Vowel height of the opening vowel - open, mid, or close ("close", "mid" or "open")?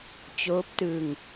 mid